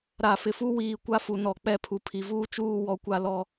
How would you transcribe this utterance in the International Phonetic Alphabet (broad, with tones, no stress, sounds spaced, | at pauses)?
ɾ a˨ f ɪ˨ f u˦ w iː˨ kʷ a˦ f u˨ n ɔ˨ k͡p ɛ˦˨ pʰ u˨ pʰ i˨ v uː˦ t͡ʃ uː˦˨ w ɔ˦ kʷ a˦ l ɔ˦